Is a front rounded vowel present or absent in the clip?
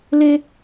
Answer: absent